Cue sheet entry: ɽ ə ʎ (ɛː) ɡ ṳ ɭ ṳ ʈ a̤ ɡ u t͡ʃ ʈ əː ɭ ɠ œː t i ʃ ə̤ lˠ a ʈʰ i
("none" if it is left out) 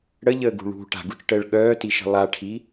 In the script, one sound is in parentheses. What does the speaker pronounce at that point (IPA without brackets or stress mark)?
əː